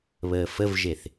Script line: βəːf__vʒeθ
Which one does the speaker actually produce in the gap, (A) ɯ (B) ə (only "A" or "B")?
B